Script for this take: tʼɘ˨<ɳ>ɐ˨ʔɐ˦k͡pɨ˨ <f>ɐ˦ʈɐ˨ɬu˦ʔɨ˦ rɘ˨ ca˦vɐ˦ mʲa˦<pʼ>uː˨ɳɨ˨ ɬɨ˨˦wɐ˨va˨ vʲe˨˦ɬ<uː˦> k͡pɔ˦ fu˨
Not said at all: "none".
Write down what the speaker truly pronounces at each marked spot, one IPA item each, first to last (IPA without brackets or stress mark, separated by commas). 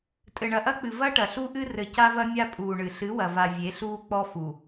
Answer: ɳ, v, pʼ, uː˦